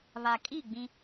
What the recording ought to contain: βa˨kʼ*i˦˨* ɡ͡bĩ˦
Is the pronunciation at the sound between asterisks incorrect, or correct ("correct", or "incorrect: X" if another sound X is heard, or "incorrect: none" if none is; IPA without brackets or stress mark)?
correct